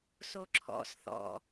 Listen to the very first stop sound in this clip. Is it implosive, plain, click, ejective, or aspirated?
click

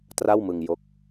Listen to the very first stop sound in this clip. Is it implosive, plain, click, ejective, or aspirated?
plain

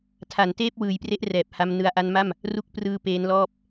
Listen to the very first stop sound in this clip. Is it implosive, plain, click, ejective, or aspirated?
aspirated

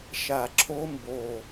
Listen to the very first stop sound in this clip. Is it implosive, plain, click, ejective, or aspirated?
click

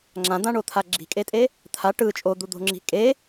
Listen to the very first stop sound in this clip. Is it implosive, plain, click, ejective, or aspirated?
click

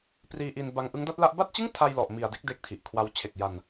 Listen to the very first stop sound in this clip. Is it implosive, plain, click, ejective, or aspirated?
plain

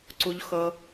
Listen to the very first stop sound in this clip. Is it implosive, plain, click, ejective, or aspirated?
click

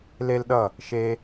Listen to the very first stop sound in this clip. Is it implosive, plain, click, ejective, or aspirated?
implosive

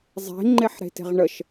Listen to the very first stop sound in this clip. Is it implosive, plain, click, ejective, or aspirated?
click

